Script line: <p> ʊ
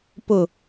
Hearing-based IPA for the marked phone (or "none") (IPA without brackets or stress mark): p